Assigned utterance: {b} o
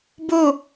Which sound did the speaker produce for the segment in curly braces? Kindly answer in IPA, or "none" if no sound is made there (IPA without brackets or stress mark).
b